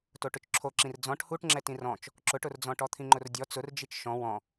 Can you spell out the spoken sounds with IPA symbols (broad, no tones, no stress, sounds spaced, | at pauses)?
t o ʈ ʊ t͡ʃ ǁʰ o ǁ ĩ r d͡z ɔ̃ ʈ h u ʈ ŋ͡ǁ ɛ t ĩ r ɔ̃ t͡ʃ | ǁ ʊ ʈ ʊ r d͡z ɔ̃ ʈ ɔ t̪ʰ ĩ ŋ͡ǃ ʊ r dʲ ɔ t͡s ʊ r d͡ʒ i t͡ʃ ʃ ɔ̃ w ɔ̃